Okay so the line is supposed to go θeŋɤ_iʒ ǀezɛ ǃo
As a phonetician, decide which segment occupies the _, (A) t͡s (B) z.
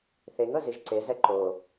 B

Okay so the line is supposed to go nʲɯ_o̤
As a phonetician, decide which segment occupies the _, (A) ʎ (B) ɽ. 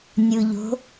A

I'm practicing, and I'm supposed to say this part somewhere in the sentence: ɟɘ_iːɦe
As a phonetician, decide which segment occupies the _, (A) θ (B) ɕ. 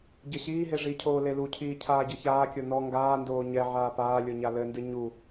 B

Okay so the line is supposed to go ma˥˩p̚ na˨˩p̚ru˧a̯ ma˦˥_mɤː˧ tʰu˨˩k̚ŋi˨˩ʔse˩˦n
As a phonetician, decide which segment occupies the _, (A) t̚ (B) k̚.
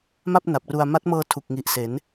A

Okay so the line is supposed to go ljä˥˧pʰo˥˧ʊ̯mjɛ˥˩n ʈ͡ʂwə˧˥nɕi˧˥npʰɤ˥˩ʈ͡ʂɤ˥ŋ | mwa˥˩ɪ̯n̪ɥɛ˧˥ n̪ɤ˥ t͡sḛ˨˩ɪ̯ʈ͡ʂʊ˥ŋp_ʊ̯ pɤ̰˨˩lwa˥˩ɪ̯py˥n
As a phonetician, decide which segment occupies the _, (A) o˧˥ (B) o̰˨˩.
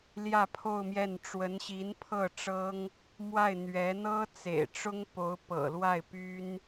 A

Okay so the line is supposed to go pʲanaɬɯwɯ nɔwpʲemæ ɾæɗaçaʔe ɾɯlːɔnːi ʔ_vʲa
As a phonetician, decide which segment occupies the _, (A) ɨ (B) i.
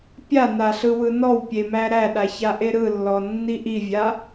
B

